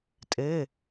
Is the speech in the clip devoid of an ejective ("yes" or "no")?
no